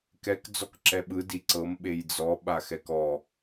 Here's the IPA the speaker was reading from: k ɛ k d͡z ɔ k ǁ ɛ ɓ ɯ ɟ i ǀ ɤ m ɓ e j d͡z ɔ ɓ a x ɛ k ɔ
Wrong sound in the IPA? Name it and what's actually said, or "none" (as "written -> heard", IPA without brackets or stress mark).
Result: ɟ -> d